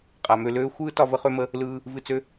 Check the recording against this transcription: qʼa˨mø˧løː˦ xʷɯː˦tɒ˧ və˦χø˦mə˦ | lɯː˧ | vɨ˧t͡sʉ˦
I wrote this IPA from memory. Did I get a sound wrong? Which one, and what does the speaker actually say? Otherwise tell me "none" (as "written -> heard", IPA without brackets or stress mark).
ʉ˦ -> ø˦